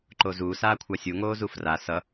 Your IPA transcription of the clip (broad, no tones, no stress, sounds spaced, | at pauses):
ǃ o z uː s aː kʷʰ a sʲ u ŋ oː z u f r a s ʌ